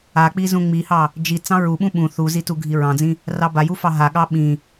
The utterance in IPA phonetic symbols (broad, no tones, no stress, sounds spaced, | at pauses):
a k͡p i z ũ ŋ͡m i h ɑ | d͡ʒ i t͡s ɑ̃ ɹ u ɓ ũ ɓ ũ θ u z i t u ɡʱ i ɹ ɑ̃ d͡z ĩ | r ɑ b a j u f ɑ ɦ a ɠ ɑ ɓ ĩ